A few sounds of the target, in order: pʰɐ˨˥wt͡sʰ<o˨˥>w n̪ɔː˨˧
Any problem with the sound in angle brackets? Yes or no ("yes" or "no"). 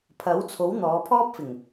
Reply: no